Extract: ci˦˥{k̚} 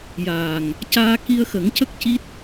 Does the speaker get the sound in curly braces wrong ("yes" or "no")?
yes